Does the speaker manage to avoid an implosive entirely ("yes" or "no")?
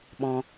no